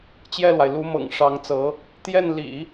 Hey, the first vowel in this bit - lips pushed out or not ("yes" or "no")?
no